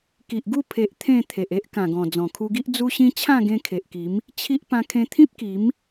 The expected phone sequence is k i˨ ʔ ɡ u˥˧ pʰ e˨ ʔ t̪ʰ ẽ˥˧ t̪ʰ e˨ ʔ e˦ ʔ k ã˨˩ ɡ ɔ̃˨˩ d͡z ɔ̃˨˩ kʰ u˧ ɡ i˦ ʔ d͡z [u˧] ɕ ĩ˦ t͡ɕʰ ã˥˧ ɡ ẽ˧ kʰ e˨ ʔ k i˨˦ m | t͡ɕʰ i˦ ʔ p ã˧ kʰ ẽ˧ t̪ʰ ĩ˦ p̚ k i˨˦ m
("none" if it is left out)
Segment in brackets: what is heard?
u˦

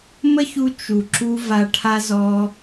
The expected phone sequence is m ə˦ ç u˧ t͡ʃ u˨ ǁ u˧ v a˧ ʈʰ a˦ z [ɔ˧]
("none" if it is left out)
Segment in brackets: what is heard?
ɔ˧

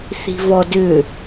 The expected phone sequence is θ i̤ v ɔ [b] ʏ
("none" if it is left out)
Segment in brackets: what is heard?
d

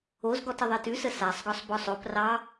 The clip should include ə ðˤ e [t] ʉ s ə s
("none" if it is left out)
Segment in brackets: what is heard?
t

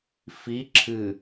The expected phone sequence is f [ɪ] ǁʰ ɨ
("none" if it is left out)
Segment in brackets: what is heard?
i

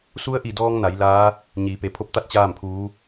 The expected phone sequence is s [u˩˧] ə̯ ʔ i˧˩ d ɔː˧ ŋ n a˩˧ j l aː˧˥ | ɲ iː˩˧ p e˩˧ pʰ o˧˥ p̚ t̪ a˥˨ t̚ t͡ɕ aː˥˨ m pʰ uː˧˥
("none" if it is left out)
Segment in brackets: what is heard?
u˧˥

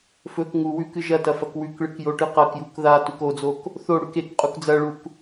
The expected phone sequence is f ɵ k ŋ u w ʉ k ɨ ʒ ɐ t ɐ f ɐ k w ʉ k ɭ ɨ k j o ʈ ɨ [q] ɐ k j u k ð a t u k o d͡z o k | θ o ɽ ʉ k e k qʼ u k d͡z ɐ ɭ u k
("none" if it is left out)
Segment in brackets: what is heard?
q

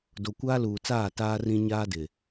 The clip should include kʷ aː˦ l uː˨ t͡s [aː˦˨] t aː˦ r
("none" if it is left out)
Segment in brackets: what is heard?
aː˦˨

